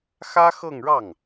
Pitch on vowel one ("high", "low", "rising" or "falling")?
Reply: high